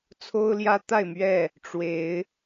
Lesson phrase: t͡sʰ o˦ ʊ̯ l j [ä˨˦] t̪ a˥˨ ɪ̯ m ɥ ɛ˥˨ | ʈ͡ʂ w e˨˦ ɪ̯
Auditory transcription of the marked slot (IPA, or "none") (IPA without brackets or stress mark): ä˦